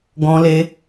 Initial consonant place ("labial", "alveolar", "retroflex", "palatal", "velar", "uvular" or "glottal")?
velar